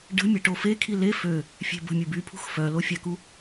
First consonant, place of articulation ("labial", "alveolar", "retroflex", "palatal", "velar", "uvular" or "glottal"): retroflex